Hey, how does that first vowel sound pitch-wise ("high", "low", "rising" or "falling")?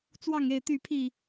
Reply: falling